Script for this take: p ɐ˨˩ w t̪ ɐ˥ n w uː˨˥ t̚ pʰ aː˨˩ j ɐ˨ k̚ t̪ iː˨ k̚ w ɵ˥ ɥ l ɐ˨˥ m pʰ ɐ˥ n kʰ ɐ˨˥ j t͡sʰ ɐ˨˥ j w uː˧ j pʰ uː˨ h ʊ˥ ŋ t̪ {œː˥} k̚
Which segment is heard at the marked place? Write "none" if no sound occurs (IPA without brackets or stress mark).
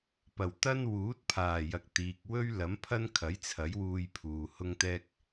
ɛː˥